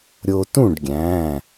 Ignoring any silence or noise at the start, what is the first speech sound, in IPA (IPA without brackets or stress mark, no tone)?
ɾʲ